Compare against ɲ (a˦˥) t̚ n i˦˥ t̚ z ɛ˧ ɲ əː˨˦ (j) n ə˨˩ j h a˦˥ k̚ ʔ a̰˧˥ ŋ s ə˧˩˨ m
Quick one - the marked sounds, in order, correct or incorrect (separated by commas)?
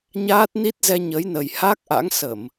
incorrect, correct